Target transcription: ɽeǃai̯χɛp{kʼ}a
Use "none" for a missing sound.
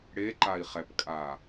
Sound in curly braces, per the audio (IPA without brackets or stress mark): kʼ